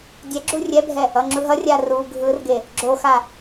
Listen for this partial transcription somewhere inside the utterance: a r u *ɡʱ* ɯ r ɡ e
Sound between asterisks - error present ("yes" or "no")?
no